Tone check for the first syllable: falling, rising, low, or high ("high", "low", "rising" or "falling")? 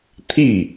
falling